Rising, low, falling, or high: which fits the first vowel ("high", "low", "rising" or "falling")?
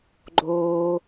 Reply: high